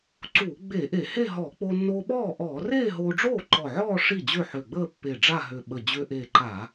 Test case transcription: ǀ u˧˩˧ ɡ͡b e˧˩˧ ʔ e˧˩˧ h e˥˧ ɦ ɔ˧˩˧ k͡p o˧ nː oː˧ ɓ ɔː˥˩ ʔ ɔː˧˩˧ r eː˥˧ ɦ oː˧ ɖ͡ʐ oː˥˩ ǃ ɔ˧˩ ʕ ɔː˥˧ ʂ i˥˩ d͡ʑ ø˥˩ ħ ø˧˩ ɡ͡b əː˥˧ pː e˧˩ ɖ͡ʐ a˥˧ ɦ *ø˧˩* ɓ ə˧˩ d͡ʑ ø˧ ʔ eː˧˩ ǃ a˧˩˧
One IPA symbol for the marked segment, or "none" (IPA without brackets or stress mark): ø˧˩